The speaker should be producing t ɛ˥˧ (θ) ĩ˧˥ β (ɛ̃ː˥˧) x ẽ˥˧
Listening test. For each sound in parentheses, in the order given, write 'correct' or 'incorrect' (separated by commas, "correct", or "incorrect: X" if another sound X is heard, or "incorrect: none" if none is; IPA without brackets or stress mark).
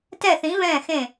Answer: correct, correct